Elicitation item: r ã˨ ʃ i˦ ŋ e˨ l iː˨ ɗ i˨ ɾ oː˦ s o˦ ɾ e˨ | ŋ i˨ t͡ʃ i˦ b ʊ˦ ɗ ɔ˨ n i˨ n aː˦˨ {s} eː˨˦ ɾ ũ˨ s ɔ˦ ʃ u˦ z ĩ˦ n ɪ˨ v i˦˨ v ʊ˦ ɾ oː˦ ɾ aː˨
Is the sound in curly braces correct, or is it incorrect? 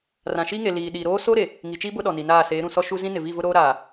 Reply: correct